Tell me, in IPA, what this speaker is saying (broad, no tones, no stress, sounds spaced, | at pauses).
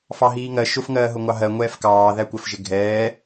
f ɑ ɦ iː ŋ ɜ ʃ ʊ f ŋ ɜː ɦ ʊ ŋʷ ɑ ɦ ɜ ŋʷ ɛː f k ɑː ð æ kʷ ɜ f ʒ ɪ ɡʱ ɛː